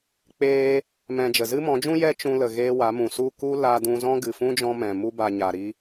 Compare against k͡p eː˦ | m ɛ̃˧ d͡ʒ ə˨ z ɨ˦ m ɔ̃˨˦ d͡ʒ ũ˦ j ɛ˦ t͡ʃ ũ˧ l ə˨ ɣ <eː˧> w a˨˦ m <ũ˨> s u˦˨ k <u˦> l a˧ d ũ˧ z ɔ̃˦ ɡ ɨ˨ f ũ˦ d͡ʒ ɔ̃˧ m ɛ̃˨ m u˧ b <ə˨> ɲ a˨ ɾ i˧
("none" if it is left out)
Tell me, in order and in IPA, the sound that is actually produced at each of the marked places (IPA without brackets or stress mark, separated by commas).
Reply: eː˧, ũ˨, u˦, a˨